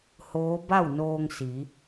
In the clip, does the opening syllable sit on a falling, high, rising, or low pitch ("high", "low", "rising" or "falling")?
rising